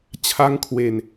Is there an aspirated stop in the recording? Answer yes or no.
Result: yes